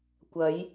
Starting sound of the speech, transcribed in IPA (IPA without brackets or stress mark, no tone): kʷ